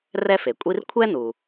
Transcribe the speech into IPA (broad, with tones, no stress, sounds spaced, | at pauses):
r ɛ˥ f e˩ kʷʼ i˥ r kʷʰ ɛ˥ n u˩